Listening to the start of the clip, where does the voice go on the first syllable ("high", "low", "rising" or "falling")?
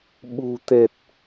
low